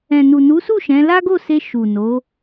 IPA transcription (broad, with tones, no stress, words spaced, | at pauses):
ɛ̃˨nu˨nu˨˦su˦˨ ʃɛ̃˨˦ la˦ɡo˦˨se˧ ʃu˨no˨˦